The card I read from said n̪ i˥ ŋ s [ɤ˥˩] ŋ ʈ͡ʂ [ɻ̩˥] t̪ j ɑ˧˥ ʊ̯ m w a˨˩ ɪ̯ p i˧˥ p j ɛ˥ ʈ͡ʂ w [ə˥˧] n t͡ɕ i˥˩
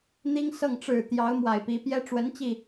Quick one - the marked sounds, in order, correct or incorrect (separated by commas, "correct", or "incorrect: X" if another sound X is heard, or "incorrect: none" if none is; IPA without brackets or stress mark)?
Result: correct, incorrect: ɻ̩˨˩, incorrect: ə˧˥